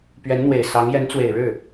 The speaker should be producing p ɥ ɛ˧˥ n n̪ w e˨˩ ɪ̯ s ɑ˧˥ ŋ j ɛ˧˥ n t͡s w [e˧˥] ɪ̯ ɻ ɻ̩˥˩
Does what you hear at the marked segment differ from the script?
yes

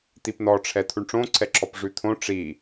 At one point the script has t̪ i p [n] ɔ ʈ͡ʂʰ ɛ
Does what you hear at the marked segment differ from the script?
no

